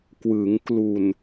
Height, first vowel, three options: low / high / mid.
high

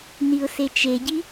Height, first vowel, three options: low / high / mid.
high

